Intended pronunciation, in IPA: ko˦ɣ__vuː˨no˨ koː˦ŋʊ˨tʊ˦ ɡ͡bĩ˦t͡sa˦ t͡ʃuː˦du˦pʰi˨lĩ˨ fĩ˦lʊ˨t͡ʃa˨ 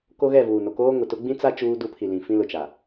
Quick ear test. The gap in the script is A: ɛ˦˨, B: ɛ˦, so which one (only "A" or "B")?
A